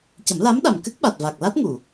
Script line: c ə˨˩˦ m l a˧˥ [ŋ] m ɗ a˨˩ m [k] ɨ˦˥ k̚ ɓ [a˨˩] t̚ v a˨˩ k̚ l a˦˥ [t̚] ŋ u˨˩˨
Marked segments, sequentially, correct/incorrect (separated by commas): incorrect, correct, correct, correct